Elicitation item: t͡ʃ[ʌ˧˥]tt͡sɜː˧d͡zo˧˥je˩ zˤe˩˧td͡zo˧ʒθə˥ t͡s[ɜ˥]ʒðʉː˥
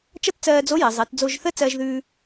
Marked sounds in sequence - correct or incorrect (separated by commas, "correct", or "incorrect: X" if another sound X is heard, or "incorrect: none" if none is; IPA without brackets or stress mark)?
incorrect: ʌ˥, correct